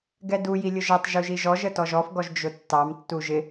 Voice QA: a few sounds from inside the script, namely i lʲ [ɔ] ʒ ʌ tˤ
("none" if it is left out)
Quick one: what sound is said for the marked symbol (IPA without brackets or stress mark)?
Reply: ʊ